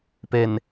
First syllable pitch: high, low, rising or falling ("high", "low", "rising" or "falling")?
low